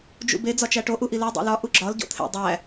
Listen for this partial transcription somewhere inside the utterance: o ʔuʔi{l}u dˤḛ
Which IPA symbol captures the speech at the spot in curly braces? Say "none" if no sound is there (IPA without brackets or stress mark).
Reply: l